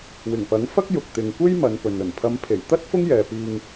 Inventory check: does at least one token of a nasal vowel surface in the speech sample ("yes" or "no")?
no